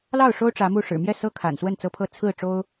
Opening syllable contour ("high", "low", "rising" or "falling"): falling